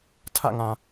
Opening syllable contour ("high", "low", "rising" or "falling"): falling